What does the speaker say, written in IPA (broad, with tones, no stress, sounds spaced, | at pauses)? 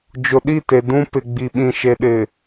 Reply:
d͡ʒ ʊ˨ ɗ i˦˨ t e˨ d ũ˦ p ɪ˨ ɡ͡b i˨ ɓ ĩ˨ ʃ e˨ ɗ ɪ˨